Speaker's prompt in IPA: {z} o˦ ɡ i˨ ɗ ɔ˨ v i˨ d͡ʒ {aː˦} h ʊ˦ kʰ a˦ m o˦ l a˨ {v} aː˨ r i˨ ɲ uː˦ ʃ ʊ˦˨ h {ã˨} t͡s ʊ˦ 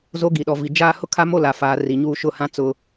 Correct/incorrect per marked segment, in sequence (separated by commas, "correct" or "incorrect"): correct, correct, incorrect, incorrect